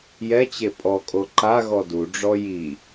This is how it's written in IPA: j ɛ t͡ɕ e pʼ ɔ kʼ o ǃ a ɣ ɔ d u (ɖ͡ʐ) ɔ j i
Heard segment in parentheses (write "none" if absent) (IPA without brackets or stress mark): ɖ͡ʐ